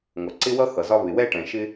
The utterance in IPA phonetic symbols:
ŋʷʌ˨ǀɪ˦wʌ˦ xʌ˨zɒ˦ βɪ˨wɛ˦ʈɛ̃˨ ʃɪ˦

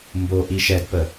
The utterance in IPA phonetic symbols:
mbo ʔiʃɛdpə

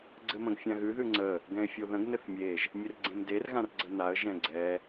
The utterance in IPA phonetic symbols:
ɡ͡ǀɘmə̃ɡfʲãɣʉ ðʉŋ͡ǀə | ɡɛ̃ɪ̯fʲoðə̃ɡ nɘθmʲeʒ | mʲɘrɡ͡ǀẽmder ɣãrɡ͡ǀənaə̯ ʒɛ̃ɡ͡ǀɛ

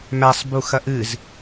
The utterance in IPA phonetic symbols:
mæsˤbu xɐʔɨz

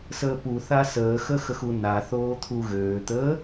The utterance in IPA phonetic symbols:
səːpuθa səːxəxəxu na θoːt̪ʰuɣøːt̪əː

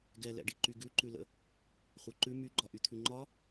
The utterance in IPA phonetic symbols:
ɡɛlɛ̰ɖiǃy ɡʉǃʉlə̰ | χʷə˞ǃʉ myɡ͡ǃɒ ʔyt̪ʰʉŋ͡ǃɒ

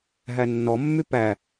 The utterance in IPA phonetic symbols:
ɦænːɔmːy pæ

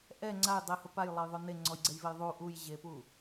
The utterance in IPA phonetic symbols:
ʔɛ ŋ͡ǀaj dˤehʊ pajlˠajðˤo neŋ͡ǀɔjɡ͡ǀɛjvej ðˤu ʔujʑepu

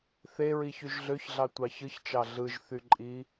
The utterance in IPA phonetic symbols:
θeɹi çyʒɮøçɮɑ tʷɑçɯçt͡ʃɑ ɮɯʒθyǃʼi

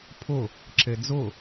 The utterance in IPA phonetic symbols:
pʰʊ | ǁed͡zʊ

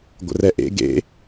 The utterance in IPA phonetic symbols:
ɡʷə̰rɛʔḛ ɡḛ

